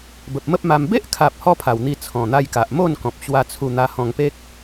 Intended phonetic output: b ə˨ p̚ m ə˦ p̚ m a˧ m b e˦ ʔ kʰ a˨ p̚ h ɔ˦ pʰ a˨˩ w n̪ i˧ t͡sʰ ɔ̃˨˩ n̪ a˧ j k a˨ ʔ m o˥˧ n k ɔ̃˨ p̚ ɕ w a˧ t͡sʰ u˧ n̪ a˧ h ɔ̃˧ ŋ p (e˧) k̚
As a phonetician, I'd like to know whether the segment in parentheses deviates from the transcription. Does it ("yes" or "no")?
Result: yes